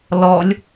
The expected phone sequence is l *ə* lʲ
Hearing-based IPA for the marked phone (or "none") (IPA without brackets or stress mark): ɔ